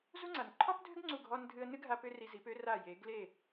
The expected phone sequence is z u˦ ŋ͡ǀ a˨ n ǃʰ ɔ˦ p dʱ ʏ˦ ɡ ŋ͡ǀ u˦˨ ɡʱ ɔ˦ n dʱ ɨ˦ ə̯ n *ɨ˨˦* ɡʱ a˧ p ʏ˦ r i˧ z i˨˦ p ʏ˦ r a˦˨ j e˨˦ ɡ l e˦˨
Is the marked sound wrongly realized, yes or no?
yes